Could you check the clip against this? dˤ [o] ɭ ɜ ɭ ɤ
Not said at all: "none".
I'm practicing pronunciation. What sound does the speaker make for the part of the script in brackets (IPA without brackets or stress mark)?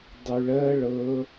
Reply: u